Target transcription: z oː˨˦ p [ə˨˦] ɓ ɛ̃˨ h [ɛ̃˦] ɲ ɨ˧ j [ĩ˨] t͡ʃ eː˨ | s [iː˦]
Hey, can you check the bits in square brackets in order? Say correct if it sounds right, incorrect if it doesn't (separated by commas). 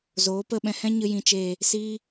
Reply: incorrect, correct, correct, correct